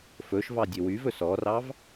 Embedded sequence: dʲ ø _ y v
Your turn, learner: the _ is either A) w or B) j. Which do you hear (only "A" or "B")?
A